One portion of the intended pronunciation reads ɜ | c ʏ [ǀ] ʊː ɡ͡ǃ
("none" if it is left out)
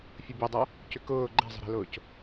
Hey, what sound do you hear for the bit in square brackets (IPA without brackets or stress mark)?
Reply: k